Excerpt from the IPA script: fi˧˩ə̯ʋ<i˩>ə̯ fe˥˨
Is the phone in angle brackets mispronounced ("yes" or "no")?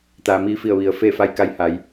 no